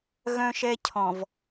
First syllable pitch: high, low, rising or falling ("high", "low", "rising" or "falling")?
high